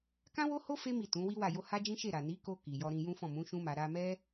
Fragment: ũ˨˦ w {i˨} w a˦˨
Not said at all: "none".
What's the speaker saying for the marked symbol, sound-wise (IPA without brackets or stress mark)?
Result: i˦